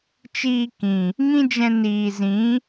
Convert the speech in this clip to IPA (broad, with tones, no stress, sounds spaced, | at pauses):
t͡ʃ iː˧ k ĩ˨ | ŋ ĩ˦ d͡ʒ ɛ̃˧ n iː˨ z ĩ˨˦